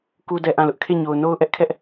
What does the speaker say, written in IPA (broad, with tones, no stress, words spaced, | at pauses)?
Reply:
ku˦dɛ˦ʔã˦˨lʊ˦ʔ kʰe˦˨ɲo˨ʊ̯ no˦ʊ̯ʔɛ˦ʔkʰɛ˦ʔ